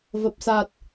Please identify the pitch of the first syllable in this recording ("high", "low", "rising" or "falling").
low